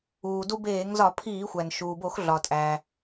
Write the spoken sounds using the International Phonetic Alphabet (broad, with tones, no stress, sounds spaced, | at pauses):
uː˩ d u˧ b eː˧˩˧ ŋ z ɒ˧˩˧ pʰ iː˧˩˧ xʷ æ˩ n ʃ uː˩ b o˧˩˧ x ɮ ɒ˩ tʼ æ˩